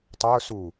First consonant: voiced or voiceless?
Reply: voiceless